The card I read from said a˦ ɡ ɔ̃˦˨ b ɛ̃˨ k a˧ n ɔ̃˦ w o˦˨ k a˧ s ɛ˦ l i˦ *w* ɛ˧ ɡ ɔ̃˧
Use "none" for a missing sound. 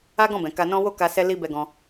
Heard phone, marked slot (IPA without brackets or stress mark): b